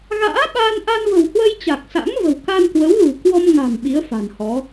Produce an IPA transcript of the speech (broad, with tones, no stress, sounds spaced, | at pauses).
ɣ a̰ː˧˥ ɓ aː˧ n ʔ a˧ n v ə̤˨˩ w h w ə˧ j t͡ɕ a˨˩ k̚ s a̰˧˥ ŋ v ə̤˨˩ w k a˧ n k w ə˨˦ w l ṳ˨˩ k w ɔ˧ m ŋ a̤˨˩ m ɓ i˨˦ ə̯ f a̤˨˩ n h ɔ˨˦